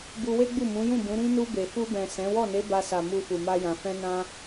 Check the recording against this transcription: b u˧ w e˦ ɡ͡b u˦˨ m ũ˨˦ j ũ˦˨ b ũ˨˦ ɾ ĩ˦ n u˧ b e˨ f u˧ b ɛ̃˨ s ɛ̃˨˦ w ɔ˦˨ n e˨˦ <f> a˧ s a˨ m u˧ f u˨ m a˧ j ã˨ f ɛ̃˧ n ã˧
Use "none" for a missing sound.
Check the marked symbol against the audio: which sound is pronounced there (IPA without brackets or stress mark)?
b